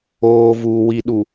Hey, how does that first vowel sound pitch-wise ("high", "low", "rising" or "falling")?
low